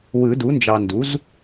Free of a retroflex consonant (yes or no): yes